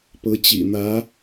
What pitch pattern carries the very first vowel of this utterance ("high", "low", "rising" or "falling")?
rising